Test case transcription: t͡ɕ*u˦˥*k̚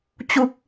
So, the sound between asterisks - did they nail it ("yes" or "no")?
yes